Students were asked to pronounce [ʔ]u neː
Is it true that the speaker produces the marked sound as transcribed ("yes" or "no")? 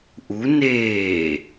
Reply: yes